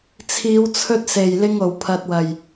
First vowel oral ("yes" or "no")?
yes